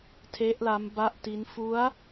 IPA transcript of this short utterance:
tʰ e˦˥ ʔ l a˦˥ m b a˥˩ ʔ t i˦˥ n f u˦˥ a̯

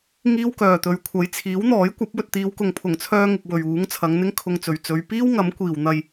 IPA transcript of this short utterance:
ŋ iː˥ w k œː˨ t̪ ɵ˨˧ ɥ kʷʰ ɐ˨˥ j t͡sʰ iː˨˥ w n̪ ɔː˨˥ j kʷ ɐ˨˥ p̚ w ɵ˧ t̚ t̪ iː˨˧ w k ʊ˨ ŋ pʰ ʊ˨˩ ŋ t͡sʰ œː˧ ŋ ɪ˨ k̚ w ɵ˨ ɥ uː˨˥ ŋ t͡sʰ ɐ˨˧ ŋ n̪ ɪ˥ ŋ kʰ ʊ˧ ŋ t͡s ɵ˨ ɥ t͡s ɵ˨˧ ɥ p iː˥ w ŋ ɐ˨˥ m kʷ iː˨ w n̪ ɐ˧ j

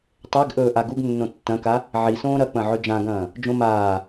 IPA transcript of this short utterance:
tˤ e ɡ ʔ ɵː ʔ a ɡ u ɡ nː õ tː ɐ̃ k a | ʕ i s õː ɾ ɐ k͡p ɐ̃ ʕ ɵ d͡ʒ ã ɡ ɐ̃ː | d͡ʒ õ m aː

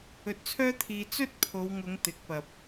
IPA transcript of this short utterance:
ɵ˧ t̚ t͡sʰ œː˥ t̪ʰ iː˧ t͡s ɵ˥ t̚ pʰ o˨˧ w ŋ ʊ˨˧ ŋ t̪ ɪ˨˥ k̚ p ɐ˨ p̚

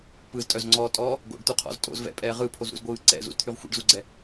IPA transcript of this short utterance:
p ɯ z tʼ œ z ŋ͡ǀ ɔː tʼ ɔː | ɡ o̰ ɖ t̪ u qʰ ɔ̰ z tʼ o̰ z v ɛ̰ pʼ ɛː ʁ ɯ pʰ o z ɾ ṵ z ɡʷ ɯː ǀ ɛ̰ z ṵ z t̪ʰ y ʁ xʷ ɛ̰ ɖ z u ɡ͡ǀ ɛ

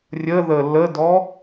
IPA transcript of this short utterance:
rʲ ə ð ə l ə d ɔ

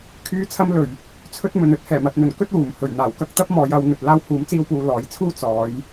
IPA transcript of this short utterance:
kʰ yː˨˥ t͡sʰ ɐ˧ m l ɵ˨˩ ɥ | t͡sʰ ɵ˥ t̚ m ɵ˨ n ɵ˧ t̚ h ɛː˨˩ m ɐ˨ t̚ n̪ ɵ˨˩ n k ɵ˥ t̚ w uː˨˩ m h ɵ˨˩ ɥ n̪ aː˨˩ w k ɐ˧ k̚ t̪ ɐ˥ p̚ m ɔː˨˧ j ɐ˨˧ w n̪ ɵ˨ t̚ l aː˧ w h uː˨˥ m t͡s iː˧ w p uː˨ l ɔː˨˥ j t͡sʰ uː˥ t͡s ɔː˨˧ j

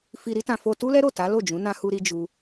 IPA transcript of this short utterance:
f i˧ ɾ i˦ t ã˧ f o˧ t u˦ l ɛ˦ ɾ o˦˨ t a˨˦ l o˦˨ d͡ʒ ũ˨˦ n ã˦ h u˦ ɾ i˦ d͡ʒ u˦

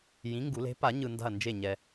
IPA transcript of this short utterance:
j ĩ˨˥ ŋ ɡ u˨˩˦ l e̤˨˥ p a˨˩˦ ɲ ɯ˨ n d a̤˦˨ ɐ̯ n d͡ʒ e˦˨ ɲ ɛ˨

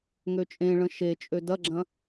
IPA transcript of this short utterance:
ŋ ø t͡ʃʼ ẽ ɭ ə̃ ʃ e t͡ʃʼ ø d ɐ ɡ͡ǁ ɐ̃

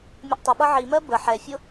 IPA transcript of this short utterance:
mʲ ə ʔ tˤ ʊ ɓ ʌ ʕ i m ɜ b ə ħ ɛ fʲ ʊ

